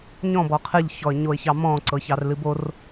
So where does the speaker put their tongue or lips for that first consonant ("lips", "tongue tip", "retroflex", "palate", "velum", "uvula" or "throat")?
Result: palate